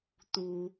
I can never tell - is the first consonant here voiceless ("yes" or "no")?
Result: yes